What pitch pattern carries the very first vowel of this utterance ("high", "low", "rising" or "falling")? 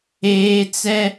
high